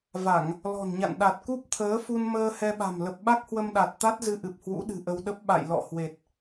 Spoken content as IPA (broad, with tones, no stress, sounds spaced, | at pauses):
v a˧˩˨ ŋ | l ɔ̤˨˩ n ɲ a̰˧˨ n ɗ a˨˩ t̚ k u˦˥ p̚ t̪ʰ əː˨˦ f u˧ n m əː˧ h ɛ˧ ɓ a̤˨˩ m l ə˨˩ p̚ ɓ a˦˥ k̚ h w ə˧ m ɗ a˨˩ t̚ t̪ a˦˥ t̚ z ɨ˧ ʔ ɨ˨˩ p̚ h w ṵ˧˥ ɗ ɨ̤˨˩ ʔ ə˧ w ɗ ə˦˥ p̚ ɓ a̰˧˨ j l ɔ̰˧˨ h w e˨˩ t̚